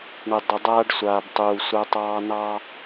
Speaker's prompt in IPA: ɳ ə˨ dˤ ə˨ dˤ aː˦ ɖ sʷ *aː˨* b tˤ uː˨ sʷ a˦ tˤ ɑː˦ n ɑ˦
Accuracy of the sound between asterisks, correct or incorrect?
correct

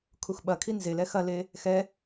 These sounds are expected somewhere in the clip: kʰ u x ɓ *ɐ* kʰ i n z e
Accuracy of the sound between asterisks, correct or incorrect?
correct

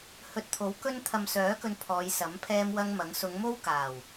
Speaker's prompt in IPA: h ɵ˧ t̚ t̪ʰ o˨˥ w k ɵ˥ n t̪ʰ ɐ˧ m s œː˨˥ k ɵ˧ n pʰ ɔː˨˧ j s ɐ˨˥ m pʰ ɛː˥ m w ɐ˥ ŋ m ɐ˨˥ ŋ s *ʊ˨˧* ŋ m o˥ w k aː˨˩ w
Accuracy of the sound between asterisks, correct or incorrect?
correct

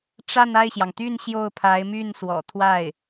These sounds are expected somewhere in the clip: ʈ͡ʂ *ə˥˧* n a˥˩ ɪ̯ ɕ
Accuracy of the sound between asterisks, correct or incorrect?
incorrect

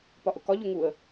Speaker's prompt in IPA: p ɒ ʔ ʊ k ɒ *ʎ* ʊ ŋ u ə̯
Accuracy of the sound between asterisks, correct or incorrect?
correct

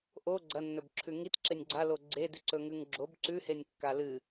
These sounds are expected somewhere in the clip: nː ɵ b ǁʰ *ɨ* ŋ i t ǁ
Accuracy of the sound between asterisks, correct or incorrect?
incorrect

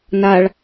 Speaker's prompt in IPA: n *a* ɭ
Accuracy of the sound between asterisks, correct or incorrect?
correct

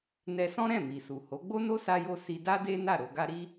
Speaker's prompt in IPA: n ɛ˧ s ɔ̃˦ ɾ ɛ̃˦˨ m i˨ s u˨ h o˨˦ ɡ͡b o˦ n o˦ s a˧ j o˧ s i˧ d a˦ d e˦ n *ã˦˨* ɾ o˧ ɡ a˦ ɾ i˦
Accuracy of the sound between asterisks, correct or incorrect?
incorrect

